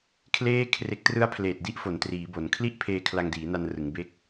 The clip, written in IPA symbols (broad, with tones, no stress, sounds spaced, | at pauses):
kʰ l eː˥˩ kʰ r e˦˥ k̚ t r ɯ˦˥ a̯ pʰ l eː˨˩ t̚ d i˦˥ ʔ f o˩˦ n t r iː˩˦ b o˩˦ n kʰ l i˥˩ ʔ pʰ eː˧ kʰ l a˧ ŋ d iː˩˦ n a˧ n r ɯ˩˦ ŋ b e˦˥ k̚